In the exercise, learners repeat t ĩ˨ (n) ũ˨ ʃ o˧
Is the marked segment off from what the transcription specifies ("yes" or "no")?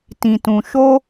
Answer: yes